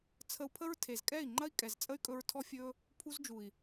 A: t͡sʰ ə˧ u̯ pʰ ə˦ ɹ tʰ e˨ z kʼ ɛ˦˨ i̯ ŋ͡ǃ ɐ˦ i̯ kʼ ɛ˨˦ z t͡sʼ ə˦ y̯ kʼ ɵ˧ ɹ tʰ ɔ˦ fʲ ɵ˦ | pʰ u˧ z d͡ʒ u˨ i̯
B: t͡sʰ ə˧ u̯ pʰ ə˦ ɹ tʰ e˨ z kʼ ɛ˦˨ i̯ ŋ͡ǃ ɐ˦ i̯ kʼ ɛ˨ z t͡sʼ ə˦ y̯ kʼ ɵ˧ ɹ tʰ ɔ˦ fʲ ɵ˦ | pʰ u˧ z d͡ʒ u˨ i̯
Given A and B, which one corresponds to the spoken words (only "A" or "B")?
B